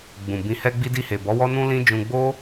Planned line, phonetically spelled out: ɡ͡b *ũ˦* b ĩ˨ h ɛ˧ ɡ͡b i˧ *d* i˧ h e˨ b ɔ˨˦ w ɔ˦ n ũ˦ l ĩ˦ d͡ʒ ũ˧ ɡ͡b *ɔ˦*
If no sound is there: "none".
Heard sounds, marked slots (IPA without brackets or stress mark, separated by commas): ũ˨, d, o˦